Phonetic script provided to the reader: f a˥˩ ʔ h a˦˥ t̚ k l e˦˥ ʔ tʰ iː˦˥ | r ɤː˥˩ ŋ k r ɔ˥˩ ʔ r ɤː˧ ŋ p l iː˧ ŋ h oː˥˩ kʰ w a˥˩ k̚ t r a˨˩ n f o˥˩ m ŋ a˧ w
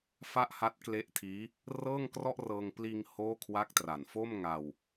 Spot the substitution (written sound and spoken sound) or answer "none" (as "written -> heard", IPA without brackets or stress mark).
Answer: none